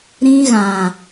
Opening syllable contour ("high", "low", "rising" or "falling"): high